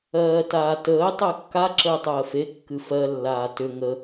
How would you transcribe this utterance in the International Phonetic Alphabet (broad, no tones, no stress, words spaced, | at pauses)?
ɜːtaːtəː tˤəːkːa ǁəːtˤəːfe kːɨfɜ lːaːtʏ ŋə